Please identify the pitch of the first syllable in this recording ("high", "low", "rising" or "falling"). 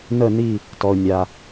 falling